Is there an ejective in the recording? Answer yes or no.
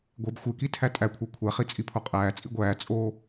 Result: yes